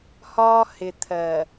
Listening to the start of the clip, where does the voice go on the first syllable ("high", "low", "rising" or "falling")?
high